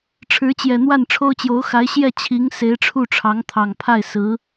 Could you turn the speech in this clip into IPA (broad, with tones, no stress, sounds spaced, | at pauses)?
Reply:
ʈ͡ʂʰ ɻ̩˧˥ t͡ɕ j ɛ˨˩ n̪ w a˥˩ n ʈ͡ʂʰ o˥ ʊ̯ t͡ɕ j o˧˥ ʊ̯ x a˧˥ ɪ̯ ɕ j ɛ˥˩ t͡ɕʰ i˧˥ ŋ s e˧˥ ɪ̯ ʈ͡ʂʰ u˥˩ ʈ͡ʂʰ ɑ˧˥ ŋ t̪ʰ ɑ˨˩ ŋ pʰ a˥˩ ɪ̯ s ɹ̩˧˥